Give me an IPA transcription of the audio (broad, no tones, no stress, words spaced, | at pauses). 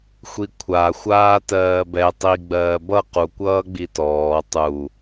xʷikʷʰaxʷaː tɜːbɛ tˤiɡ͡bɜː bʌ qu kʷʌːɡ͡bitɔː tˤu